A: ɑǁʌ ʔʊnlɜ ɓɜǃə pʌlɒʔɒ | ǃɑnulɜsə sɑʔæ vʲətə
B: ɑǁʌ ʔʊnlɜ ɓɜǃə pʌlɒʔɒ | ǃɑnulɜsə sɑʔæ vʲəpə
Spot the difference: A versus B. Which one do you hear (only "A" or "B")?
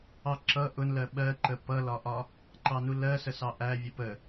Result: B